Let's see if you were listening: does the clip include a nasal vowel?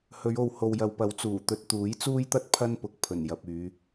no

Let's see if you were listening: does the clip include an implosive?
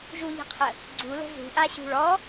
no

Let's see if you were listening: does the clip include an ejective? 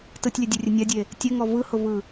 no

